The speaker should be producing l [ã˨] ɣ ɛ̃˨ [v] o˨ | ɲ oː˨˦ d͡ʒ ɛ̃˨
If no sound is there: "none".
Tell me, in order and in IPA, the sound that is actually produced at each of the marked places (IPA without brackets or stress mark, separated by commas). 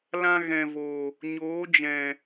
ã˦, v